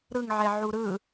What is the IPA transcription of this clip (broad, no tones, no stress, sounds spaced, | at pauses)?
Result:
ɾ ɯ ŋ ʕ ɛ ʕ u ɾ ɯ